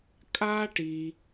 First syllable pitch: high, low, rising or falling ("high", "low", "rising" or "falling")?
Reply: high